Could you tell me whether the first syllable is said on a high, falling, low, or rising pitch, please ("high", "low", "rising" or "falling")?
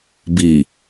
low